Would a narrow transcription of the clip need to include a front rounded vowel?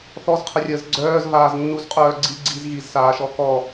yes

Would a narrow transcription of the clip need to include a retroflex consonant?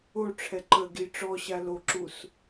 yes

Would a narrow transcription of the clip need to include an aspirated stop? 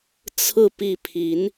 yes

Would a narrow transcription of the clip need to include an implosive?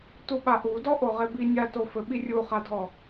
yes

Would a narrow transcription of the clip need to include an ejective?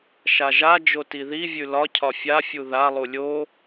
no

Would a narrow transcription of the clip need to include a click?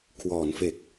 no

